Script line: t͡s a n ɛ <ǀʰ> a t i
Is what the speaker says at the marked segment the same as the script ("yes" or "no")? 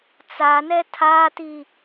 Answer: no